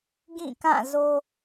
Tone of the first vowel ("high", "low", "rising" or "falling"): falling